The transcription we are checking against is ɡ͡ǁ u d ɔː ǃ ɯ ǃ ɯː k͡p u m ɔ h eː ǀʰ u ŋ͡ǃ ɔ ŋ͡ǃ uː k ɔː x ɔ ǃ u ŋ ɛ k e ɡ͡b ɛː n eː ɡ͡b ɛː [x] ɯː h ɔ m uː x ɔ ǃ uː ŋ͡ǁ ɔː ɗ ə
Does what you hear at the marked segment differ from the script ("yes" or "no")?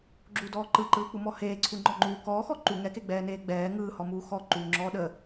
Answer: yes